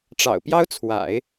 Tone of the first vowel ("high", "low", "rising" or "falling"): low